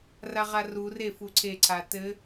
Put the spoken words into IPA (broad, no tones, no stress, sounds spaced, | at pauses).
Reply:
r a ʁ a r u r e f u ǀʰ e ǀʰ a t ɘ